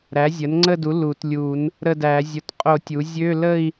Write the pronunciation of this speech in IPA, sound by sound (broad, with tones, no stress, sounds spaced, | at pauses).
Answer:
ɾ æ˩˥ zʲ ə˩˥ n ŋ͡ǀ ə˥˧ d u˩˥ l u˨˩˦ t lʲ u˨˩˦ n | ɾ ə˥˧ d æ˨˩˦ zʲ ʊ˨˩˦ t qʼ o˨˩˦ tʲ u˩˥ zʲ ø˧˥˧ l ə˥˧ i̯